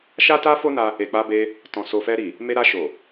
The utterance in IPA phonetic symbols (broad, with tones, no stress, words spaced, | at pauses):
ʃa˦ta˦fo˦na˧ | e˨k͡pa˧be˧ | tɔ̃˨ so˨fɛ˧ɾi˨ | me˧ɾa˧ʃo˨